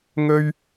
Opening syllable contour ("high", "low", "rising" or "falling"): high